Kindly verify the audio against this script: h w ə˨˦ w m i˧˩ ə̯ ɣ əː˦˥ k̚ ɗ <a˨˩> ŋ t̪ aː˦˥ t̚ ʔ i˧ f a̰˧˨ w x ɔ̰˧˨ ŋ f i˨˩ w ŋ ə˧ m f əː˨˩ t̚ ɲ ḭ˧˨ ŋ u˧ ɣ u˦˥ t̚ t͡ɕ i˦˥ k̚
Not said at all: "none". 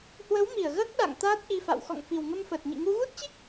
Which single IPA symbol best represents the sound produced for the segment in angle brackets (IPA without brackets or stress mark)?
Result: a̰˧˨